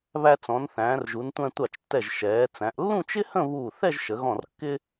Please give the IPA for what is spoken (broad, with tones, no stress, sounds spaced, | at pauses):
β æ˧ t͡s ɔ̃˩˧ n θ æ̃ː˩˧ r ʒ u˩˧ n tʷ æ̃˧ tʷ ɑ˧˩ t͡ʃ tː ɛ˧˩ ʒ ʃ ɛː˩˧ t͡s æ̃˩˧ ʔ lː ũ˥˧ t͡ʃ ɪ˥ h ə̃˥˧ β uː˧˩ θ ɛ˥˧ ʒ ʃ ə˩˧ ɣ ɔ̃˧˩ r kː ɪ˥